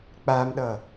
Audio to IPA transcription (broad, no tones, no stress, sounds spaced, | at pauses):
k͡p a m ɗ ʌ